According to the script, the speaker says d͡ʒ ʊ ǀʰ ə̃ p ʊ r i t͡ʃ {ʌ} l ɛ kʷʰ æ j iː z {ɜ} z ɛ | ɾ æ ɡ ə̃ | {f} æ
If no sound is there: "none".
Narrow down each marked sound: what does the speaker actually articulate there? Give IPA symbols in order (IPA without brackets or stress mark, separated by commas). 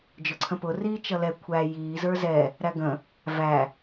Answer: ʌ, ə˞, v